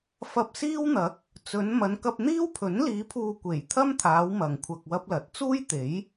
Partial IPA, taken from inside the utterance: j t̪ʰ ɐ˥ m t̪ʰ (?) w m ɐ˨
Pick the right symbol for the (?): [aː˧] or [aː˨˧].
aː˨˧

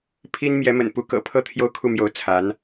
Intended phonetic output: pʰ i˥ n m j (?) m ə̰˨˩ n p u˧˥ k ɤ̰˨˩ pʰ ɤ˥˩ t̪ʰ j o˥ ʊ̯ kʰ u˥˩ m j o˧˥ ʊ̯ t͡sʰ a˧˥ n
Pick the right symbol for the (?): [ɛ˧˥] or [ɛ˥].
ɛ˧˥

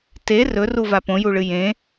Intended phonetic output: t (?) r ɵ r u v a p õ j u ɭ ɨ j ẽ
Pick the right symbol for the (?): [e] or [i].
e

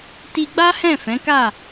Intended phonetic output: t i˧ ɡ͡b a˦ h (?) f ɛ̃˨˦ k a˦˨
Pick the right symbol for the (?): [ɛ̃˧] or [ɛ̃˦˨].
ɛ̃˦˨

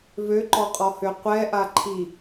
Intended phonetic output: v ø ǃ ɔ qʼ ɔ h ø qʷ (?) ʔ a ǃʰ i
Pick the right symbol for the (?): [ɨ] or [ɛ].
ɛ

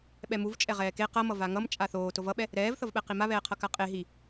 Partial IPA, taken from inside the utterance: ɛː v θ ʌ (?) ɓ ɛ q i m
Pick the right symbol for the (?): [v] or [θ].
v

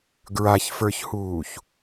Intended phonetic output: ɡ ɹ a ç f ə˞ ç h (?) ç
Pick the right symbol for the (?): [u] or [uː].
uː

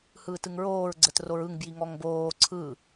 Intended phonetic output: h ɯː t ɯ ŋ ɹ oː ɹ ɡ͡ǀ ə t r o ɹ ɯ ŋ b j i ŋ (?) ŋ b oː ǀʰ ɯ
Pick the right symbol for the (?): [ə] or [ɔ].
ɔ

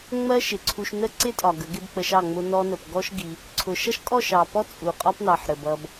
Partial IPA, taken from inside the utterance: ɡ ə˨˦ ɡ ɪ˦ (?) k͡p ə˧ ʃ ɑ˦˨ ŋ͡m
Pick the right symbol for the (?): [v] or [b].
b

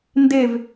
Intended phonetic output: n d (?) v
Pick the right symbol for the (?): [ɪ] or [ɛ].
ɪ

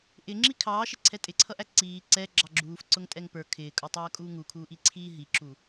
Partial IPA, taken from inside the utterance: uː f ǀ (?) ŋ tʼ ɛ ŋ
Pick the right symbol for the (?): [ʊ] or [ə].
ʊ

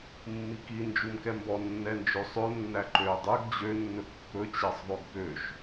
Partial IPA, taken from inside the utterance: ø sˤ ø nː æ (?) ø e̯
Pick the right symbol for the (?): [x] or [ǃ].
ǃ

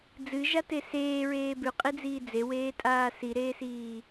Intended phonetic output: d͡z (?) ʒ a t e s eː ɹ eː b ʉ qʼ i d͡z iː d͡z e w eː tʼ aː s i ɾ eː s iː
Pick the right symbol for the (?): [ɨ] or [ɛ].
ɨ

